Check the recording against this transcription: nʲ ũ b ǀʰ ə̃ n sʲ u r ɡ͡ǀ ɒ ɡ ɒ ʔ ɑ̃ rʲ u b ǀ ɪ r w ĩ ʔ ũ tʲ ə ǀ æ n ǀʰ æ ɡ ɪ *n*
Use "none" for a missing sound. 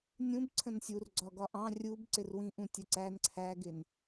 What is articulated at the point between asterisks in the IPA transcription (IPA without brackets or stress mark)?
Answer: n